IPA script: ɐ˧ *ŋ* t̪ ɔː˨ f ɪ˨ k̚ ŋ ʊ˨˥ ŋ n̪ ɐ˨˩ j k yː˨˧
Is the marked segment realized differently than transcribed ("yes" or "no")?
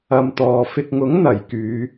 yes